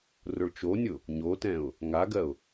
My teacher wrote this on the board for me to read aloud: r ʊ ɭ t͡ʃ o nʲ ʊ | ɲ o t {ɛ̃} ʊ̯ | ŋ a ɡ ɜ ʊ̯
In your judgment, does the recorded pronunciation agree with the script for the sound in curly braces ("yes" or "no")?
yes